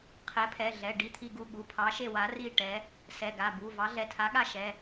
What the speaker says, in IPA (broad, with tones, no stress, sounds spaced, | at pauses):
qʰ ɛ˨˥ pʰ ɛ˩˧˩ ɮ ɛ˩˧˩ ɖ i˥˨ t̪ʰ i˥˨ ɡ u˥˨ ɠ u˩˧˩ pʰ ɑ˨˥ ʃ e˥˨ w a˨˥ r i˥˨ ʈ ɛ˨˥ | s ɛ˩˧˩ ɡ a˩˧˩ b u˩˧˩ v ɑ˨˥ ɮ ɛ˩˧˩ tʰ a˨˥ ɠ a˥˨ ʃ ɛ˩˧˩